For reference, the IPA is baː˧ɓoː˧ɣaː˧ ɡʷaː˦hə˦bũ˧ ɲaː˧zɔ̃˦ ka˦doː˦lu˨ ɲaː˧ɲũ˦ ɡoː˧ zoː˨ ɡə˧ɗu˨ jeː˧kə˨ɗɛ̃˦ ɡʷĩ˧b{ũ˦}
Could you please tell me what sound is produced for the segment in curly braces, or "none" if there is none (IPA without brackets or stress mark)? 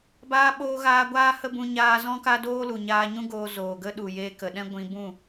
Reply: ũ˦˨